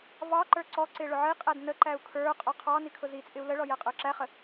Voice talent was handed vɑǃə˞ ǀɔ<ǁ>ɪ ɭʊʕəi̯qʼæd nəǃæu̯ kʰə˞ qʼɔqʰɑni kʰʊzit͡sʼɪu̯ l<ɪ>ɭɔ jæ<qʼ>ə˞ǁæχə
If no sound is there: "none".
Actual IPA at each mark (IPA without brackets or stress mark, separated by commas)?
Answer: ǀ, ə, qʼ